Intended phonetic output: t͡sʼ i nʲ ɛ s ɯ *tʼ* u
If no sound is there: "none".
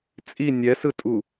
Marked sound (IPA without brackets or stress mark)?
tʼ